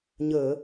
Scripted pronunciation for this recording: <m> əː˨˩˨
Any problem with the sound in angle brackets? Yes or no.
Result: yes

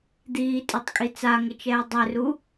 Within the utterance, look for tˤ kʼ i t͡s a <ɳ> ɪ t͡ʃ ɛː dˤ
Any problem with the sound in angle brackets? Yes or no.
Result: yes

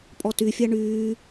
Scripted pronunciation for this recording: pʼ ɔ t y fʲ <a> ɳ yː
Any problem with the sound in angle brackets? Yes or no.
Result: no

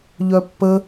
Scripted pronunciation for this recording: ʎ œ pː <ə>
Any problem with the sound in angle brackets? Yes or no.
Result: no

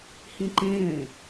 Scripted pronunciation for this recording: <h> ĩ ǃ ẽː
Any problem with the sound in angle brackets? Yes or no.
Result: no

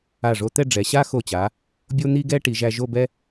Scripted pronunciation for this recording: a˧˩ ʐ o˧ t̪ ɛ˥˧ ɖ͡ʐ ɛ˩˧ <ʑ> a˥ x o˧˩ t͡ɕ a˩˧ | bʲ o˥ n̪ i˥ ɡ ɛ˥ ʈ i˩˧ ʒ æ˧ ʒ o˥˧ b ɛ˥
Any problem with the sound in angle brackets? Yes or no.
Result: yes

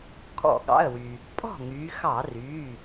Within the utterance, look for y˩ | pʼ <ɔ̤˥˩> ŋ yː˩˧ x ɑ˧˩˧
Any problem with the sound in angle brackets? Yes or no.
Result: no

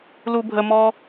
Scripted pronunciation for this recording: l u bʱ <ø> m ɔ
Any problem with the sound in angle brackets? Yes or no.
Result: yes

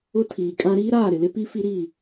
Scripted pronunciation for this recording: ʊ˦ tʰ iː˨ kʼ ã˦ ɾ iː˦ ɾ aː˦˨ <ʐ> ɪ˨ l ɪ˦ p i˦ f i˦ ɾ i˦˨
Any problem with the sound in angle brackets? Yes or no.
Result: yes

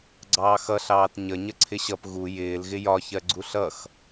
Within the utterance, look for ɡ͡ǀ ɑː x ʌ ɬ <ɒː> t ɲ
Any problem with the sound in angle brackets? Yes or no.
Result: yes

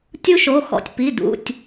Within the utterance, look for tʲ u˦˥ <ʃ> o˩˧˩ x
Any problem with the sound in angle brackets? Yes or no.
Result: no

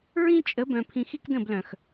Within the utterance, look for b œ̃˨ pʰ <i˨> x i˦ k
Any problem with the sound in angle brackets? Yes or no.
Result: yes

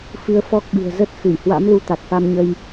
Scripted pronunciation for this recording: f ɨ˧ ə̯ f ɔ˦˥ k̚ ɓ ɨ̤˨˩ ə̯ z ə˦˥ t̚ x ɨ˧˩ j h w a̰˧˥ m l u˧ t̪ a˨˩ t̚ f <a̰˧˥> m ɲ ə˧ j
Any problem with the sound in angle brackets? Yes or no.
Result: yes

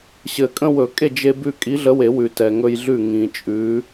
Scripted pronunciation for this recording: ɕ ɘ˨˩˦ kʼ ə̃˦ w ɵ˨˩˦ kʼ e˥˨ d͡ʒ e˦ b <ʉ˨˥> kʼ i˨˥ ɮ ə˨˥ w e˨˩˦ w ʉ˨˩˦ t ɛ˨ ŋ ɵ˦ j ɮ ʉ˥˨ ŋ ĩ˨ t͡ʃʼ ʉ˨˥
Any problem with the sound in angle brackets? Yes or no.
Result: yes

